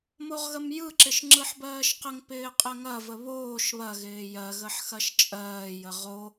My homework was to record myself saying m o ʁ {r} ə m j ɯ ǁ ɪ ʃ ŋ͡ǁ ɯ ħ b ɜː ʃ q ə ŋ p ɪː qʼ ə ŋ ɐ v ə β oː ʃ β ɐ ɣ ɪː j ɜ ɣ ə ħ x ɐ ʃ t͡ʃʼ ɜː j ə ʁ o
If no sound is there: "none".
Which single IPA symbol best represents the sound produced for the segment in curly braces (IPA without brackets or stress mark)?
ɣ